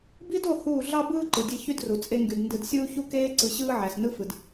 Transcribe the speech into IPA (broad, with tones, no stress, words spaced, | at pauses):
bi˦do˦˨ huː˦˨ ɮɑ˦bɯː˦ ǃɯ˨dʲe˦ çy˦dru˨ t͡sʼe˦ŋɡy˨d ndɯ˨dsʲuː˦çu˦ keː˦ ǀɯ˨ɕɯː˦ ʕæ˨snɯ˦fɯ˨d